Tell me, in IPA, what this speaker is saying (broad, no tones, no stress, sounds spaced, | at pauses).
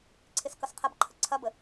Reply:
ǀʰ ɪ s k ʌ s qʰ ɐ b ǃʰ ə ǀʰ ɐ b ə